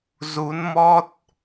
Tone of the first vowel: rising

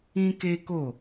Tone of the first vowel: high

